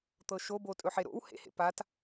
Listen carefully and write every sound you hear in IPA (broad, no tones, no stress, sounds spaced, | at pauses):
t̪ ɤ ʃ o b o tʼ ɵ ħ e ɾ o̰ w h ḛ h ḛ p a t